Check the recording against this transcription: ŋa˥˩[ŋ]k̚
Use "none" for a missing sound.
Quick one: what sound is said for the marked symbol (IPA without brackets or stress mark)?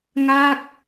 none